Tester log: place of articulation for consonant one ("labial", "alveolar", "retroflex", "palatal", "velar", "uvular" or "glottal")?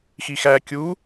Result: velar